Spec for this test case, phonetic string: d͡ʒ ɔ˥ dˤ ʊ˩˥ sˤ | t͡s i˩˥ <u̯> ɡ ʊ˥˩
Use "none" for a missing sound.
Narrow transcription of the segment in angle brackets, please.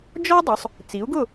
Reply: u̯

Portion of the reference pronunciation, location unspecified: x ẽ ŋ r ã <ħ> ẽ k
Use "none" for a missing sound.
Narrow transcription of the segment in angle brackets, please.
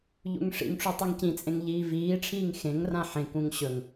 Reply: ħ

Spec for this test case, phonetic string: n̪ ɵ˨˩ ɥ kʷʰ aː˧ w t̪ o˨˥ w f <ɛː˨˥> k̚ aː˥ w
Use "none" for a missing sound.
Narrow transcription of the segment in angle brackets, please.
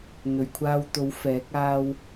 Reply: ɛː˨˥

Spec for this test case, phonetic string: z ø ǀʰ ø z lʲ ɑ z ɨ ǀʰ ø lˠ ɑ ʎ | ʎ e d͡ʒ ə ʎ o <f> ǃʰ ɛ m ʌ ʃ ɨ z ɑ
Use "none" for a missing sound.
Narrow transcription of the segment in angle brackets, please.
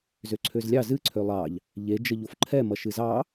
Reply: f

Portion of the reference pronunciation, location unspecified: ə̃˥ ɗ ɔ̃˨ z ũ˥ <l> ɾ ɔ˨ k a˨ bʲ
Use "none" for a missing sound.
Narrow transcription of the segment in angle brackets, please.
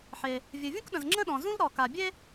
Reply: l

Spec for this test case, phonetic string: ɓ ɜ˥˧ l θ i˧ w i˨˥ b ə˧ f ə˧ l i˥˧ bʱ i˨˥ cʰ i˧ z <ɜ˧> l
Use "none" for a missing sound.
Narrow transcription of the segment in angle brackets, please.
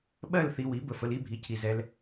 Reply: ɛ˧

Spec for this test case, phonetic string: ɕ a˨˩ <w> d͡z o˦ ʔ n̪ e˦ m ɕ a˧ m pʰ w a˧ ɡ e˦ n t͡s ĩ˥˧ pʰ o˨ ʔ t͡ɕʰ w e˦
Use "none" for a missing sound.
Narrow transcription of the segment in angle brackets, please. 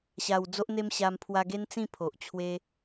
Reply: w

